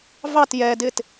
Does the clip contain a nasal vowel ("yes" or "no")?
no